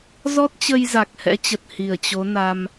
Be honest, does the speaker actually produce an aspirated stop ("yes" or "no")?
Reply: no